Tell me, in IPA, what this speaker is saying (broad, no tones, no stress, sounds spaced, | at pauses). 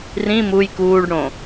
r ĩ m u j k uː ɖ ɽ õ